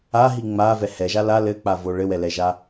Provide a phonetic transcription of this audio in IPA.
a ɦ i ŋ͡m a v ɛ h ɛ ʒ a l a l ɘ k͡p a v o ɭ ɘ w ɛ l ɛ ʒ a

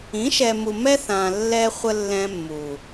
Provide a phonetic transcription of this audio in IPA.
ĩ˨˦ ʃ ɛ˨ m u˨ m ɛ˦ θ ãː˨ lː ɛ˦ χʷ ə˦ lː ɛ̃˦ mː uː˨

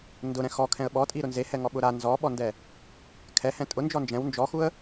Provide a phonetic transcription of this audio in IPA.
n d ʊ ɾ ɛ̃ x ɔ kʰ ɛ̃ ə̯ ɓ ɔ tʼ i ɾ ʊ n z e h ɛ ŋ ɔ ɓ ʊ ɾ a n z ɔ ɓ ɔ n d ɛ | kʰ ɛ h ɛ̃ tʼ ʊ n d͡ʒ ɔ n d͡ʒ ɛ̃ w n d͡ʒ ɔ x u ə̯

